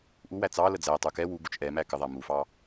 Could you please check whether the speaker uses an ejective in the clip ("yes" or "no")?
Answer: no